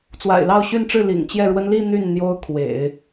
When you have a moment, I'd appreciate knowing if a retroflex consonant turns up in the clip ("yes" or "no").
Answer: yes